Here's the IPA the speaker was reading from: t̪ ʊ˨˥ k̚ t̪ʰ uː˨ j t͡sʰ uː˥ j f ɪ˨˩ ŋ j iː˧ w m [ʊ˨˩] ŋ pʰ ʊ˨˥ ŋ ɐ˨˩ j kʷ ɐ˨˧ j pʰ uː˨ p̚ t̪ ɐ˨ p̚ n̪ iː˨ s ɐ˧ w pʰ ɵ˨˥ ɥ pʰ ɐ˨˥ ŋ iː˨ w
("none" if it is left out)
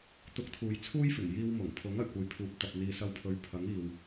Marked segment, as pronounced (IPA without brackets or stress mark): ʊ˨˩